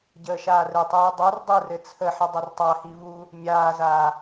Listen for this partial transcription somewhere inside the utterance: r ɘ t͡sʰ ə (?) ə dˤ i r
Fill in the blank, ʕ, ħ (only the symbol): ħ